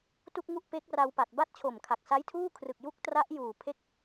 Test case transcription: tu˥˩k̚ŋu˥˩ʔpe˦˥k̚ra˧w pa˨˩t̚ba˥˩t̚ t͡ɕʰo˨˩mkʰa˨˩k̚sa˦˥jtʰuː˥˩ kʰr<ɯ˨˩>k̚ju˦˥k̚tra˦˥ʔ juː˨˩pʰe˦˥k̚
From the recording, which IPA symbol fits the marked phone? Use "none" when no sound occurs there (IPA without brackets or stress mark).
ɯ˨˩